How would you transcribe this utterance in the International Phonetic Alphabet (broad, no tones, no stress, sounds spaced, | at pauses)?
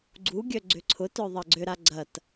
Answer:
ɡ͡ǀ u ɡʲ œ ɡ͡ǀ ʏ ǀʰ ʊ t œ ðˤ ɐ ɡ͡ǀ ʏ ɾ a ɡ͡ǀ ɐ t